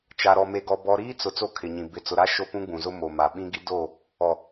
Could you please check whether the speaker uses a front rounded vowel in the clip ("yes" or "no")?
no